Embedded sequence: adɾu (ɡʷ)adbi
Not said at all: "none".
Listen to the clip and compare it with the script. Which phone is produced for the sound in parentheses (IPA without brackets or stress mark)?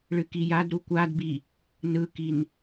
kʷ